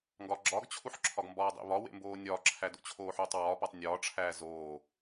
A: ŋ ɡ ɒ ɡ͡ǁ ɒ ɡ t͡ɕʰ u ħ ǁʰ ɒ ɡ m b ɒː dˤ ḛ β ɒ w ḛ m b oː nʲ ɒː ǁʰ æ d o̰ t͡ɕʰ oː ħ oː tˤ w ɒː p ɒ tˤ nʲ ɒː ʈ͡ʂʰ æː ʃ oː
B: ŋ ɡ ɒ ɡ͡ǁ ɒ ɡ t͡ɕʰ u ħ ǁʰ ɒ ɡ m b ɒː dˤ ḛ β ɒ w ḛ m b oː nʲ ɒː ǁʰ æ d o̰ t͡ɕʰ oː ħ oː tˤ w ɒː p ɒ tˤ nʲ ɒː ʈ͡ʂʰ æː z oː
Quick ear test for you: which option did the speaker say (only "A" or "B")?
B